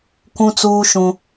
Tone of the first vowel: high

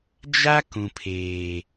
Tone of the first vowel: high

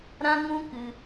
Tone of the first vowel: high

